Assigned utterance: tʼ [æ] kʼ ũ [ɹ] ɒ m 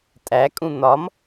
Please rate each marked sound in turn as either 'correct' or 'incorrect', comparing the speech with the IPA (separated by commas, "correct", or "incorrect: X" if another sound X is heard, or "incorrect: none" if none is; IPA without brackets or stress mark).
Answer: correct, incorrect: n̪